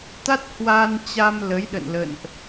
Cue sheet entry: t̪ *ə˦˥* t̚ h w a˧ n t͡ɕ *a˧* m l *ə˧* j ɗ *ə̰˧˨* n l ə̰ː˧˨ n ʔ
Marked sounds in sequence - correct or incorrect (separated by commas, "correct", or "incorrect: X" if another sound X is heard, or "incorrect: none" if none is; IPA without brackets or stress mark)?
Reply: incorrect: a˦˥, correct, incorrect: ə˨˦, correct